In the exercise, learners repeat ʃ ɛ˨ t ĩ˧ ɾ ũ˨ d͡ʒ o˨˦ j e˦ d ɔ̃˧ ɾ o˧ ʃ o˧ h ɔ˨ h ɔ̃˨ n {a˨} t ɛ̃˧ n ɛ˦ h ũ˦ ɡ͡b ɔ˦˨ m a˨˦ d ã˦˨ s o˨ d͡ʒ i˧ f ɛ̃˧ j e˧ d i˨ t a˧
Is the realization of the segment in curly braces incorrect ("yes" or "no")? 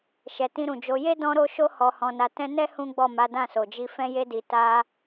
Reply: no